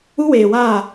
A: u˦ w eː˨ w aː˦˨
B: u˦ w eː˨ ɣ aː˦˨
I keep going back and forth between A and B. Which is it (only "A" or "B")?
A